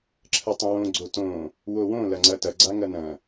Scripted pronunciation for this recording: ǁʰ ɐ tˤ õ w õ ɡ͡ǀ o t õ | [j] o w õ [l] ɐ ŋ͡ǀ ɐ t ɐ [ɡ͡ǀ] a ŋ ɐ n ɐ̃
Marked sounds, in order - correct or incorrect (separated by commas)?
incorrect, correct, correct